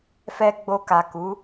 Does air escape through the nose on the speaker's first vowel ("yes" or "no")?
no